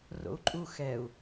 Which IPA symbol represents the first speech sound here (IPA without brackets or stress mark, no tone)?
r